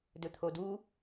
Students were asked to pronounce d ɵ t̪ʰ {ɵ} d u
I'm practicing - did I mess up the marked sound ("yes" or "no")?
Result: yes